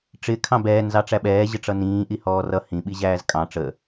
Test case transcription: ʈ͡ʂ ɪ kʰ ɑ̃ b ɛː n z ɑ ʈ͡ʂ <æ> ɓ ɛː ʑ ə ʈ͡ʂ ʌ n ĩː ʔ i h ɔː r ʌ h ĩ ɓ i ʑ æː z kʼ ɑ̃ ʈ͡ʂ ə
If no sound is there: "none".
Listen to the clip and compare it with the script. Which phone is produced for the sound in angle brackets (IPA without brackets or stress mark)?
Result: æ